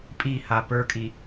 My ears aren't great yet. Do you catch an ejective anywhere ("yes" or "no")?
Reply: yes